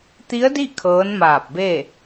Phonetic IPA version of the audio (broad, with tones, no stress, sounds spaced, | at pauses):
t̪ i˧˥ ə̯ d i˥˨ kʰ ɤː˧˥ n m aː˧˩ p̚ b e˥˨